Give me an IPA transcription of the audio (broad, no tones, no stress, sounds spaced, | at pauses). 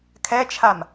kʰ ɛ t͡ʃʰ a m